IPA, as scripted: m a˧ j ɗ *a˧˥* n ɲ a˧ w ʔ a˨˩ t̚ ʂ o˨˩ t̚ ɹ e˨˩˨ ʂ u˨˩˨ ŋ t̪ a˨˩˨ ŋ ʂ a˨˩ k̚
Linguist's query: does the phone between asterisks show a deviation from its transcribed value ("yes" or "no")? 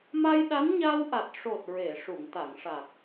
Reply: no